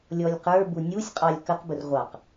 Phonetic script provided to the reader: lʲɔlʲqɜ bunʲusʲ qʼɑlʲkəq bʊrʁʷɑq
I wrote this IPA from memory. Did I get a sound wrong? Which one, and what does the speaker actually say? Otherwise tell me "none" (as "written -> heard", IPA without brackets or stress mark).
ɜ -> ə˞